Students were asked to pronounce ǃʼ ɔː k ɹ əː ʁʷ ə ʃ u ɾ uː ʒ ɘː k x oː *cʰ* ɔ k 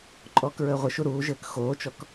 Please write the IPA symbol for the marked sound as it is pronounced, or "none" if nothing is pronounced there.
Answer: t͡ʃ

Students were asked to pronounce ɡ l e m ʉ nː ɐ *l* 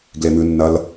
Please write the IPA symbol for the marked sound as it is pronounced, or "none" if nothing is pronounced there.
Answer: l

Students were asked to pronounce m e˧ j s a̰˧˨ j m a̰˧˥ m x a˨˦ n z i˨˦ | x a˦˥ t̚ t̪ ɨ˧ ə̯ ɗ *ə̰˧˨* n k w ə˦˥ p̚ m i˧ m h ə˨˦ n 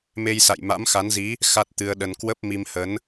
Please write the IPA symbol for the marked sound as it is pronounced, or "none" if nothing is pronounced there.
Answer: ə˧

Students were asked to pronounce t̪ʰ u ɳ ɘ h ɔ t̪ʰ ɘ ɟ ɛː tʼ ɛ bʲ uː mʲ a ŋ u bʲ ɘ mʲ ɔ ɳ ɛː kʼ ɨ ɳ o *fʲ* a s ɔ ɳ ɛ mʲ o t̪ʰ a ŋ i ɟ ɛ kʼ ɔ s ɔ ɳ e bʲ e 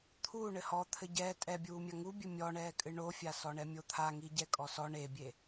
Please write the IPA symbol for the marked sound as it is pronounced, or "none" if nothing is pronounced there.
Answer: fʲ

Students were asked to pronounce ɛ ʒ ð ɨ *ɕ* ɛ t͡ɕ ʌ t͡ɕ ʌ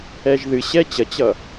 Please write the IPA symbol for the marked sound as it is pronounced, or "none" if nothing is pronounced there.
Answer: ɕ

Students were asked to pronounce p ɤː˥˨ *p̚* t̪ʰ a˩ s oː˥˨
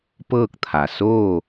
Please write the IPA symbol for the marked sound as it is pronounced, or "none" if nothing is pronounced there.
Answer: k̚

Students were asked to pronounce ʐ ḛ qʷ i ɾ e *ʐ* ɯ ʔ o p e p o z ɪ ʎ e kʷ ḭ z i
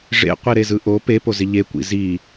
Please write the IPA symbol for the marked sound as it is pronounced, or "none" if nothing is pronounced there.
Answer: z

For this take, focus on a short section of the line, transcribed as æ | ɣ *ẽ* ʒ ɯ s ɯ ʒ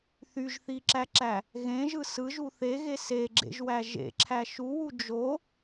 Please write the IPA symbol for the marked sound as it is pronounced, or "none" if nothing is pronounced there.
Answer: ẽ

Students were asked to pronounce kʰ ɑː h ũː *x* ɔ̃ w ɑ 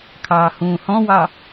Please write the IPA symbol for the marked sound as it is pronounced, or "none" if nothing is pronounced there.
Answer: h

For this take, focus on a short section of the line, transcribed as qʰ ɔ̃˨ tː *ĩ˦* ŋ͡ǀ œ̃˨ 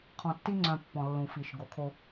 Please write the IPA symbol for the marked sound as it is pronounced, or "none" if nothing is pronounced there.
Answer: i˦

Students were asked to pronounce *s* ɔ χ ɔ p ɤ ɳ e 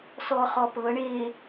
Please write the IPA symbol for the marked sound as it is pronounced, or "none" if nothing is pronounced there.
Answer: s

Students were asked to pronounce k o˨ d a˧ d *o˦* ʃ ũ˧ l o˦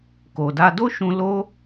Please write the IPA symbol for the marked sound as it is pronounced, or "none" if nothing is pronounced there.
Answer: o˦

